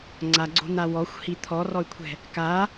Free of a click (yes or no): no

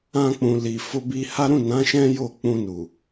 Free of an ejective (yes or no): yes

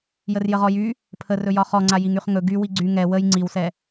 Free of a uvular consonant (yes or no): no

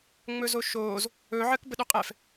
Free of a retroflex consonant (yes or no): yes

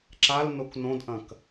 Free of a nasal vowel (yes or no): no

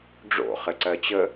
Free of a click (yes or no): no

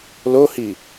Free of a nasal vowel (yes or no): yes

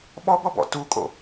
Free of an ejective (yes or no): no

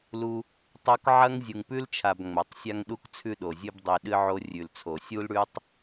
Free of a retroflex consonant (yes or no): no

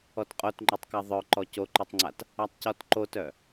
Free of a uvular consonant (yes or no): no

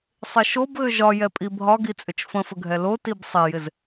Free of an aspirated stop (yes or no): yes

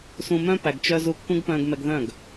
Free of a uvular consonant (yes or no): yes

